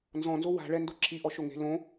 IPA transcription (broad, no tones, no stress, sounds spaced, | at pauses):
n z ɔ̃ n z o w a̤ ɭ ɛ n d o ǁʰ i ʔ ɔ ʃ o ŋ e̤ l õ